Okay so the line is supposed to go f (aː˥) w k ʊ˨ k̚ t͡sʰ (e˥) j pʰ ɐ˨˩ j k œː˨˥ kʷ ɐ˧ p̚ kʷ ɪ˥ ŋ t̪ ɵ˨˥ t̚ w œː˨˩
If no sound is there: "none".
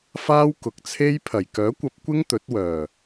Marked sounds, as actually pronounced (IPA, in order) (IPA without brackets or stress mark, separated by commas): aː˥, e˥